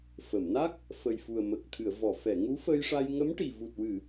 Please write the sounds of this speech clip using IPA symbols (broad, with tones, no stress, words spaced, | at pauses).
fə˨˩˨mna˦˥k̚ | fə˨˩jfu˨˩ə̯mə˨˩k̚t̪ʰɨ˨˩˨ə̯ vɔ˨˩˨fɛ˨˩˨ ŋu˧˥fə˧jʂa˧j ŋə˧˥m ʈi˨˩ vu˨˩t̚wɨ˨˩˨